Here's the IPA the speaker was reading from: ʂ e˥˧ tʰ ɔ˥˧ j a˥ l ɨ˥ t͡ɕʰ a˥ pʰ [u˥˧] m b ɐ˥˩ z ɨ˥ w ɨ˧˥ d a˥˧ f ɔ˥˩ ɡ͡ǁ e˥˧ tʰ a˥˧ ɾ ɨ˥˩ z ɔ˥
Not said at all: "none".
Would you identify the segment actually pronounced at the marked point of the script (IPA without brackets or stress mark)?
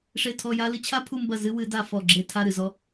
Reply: u˥˧